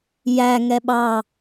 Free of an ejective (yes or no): yes